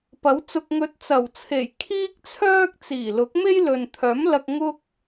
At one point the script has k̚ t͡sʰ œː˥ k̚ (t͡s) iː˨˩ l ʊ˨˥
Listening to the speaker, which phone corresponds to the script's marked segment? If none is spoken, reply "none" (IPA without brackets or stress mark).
t͡s